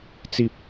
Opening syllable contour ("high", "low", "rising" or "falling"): low